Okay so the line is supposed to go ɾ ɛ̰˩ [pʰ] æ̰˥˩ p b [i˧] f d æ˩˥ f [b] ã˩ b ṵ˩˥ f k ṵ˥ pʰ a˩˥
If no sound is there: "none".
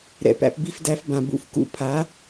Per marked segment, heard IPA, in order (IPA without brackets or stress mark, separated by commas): p, i˧, b